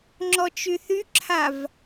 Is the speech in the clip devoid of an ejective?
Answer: yes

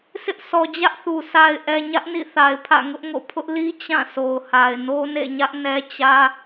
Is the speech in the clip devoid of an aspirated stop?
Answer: no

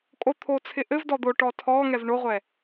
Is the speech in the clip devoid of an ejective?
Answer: no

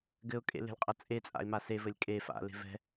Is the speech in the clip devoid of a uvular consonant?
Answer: no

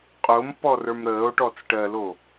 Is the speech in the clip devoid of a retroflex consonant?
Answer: no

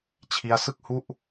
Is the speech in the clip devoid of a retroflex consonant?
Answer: yes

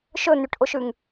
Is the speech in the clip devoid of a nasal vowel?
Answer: yes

